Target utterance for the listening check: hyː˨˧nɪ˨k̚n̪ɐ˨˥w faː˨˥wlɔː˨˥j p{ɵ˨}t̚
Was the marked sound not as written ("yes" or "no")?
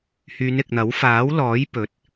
no